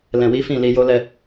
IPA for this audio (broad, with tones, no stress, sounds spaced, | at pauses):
l ɛ̃˨ w i˨˦ f ĩ˦˨ l i˧ j o˦ l ɛ˦